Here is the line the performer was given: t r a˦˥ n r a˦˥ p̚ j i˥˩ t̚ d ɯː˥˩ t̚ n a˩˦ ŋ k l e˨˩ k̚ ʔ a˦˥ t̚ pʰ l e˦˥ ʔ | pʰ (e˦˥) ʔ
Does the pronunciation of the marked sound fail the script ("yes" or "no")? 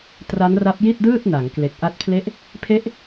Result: no